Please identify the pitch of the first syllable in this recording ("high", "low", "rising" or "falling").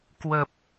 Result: low